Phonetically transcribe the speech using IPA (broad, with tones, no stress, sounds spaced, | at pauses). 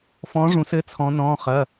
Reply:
f ɔ̃˨˥ ʐ ũ˩˧ s ɘ˩˧˩ t͡sʰ ɔ̃˩˧ n ɔ̃ː˩˧˩ χ ɐ˩˧˩